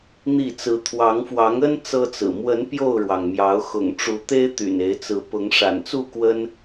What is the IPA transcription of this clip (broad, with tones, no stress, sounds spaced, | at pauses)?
n̪ i˥˨ t͡s ɹ̩˨˦ t̪ʰ w ɑ˨˦ ŋ f w ɑ˨˦ ŋ ə˦ n t͡s ɤ˦ t͡s ɹ̩˨˩ m w ə˨˦ n p j o˥˨ ʊ̯ ɻ w ɑ˩ ŋ m j ɑ˨˦ ʊ̯ x ʊ̰˨˩ ŋ ʈ͡ʂ u˨˦ t̪ e˦ ɪ̯ t̪ y̰˨˩ n e˨˦ ɪ̯ t͡s ɹ̩˨˦ p ʊ˨˦ ŋ ʂ a̰˨˩ n t͡s u˥˨ k w ə˦ n